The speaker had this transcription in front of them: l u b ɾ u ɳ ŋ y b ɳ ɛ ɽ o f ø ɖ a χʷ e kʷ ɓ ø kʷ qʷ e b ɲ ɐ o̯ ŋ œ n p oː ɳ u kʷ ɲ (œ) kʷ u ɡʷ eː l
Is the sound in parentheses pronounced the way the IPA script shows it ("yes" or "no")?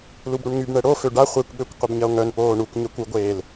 yes